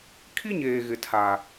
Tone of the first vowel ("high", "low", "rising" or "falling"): high